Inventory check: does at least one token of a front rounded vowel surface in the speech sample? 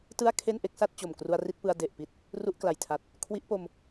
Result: no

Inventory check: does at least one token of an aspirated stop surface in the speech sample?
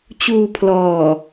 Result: yes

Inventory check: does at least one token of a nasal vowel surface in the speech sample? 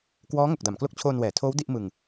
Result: no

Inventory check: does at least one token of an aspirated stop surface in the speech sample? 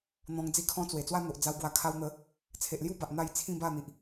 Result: yes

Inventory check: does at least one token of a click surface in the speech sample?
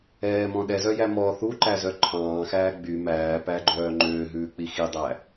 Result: yes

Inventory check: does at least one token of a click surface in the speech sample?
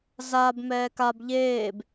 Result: no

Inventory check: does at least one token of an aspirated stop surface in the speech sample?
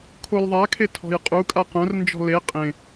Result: yes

